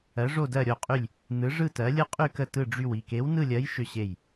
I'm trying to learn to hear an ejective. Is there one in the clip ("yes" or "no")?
yes